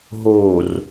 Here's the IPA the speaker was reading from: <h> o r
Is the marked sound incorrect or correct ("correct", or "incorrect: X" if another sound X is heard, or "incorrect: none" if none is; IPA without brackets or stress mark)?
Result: incorrect: ɦ